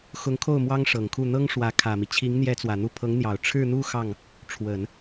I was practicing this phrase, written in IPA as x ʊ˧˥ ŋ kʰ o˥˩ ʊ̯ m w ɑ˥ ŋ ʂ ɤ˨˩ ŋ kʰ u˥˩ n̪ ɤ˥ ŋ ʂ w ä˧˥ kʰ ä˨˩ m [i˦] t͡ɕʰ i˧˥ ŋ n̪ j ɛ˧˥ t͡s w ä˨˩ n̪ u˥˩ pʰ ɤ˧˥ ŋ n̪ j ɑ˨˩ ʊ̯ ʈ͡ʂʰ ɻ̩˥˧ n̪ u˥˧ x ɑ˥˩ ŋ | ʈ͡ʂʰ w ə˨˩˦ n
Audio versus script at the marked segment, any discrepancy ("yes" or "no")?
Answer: no